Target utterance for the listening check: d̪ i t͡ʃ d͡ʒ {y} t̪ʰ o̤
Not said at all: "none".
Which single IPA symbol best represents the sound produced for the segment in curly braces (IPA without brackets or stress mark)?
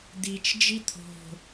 i